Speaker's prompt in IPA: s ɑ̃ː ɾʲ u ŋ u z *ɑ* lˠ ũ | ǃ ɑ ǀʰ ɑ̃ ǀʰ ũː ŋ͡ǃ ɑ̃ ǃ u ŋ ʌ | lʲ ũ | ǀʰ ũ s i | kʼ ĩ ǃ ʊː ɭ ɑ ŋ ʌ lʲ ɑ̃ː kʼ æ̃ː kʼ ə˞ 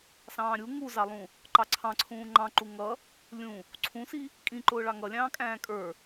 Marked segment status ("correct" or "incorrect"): correct